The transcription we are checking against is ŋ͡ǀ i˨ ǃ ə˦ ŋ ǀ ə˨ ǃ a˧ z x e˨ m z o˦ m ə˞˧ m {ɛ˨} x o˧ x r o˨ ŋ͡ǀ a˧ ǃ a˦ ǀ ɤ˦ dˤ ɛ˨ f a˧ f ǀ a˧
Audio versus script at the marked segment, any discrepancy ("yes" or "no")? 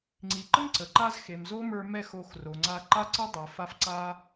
yes